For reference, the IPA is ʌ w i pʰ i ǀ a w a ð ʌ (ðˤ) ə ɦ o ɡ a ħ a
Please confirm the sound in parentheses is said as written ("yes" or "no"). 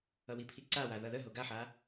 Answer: no